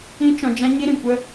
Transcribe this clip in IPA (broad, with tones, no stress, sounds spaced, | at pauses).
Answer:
ĩ˦ t͡ʃ ɔ̃˧ d͡ʒ ã˦ ɲ i˦ ɾ ĩ˨ kʷ ə˦